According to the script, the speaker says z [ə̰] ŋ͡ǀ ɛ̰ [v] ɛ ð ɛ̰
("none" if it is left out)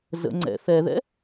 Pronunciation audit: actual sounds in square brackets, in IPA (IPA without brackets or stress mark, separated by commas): ə̰, θ